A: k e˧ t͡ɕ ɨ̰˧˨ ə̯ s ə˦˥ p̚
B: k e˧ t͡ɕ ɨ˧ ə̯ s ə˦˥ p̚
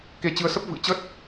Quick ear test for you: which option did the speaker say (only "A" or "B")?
B